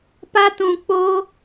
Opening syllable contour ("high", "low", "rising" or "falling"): high